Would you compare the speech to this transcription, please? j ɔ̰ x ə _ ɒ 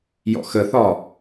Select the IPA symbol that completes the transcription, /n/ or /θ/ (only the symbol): θ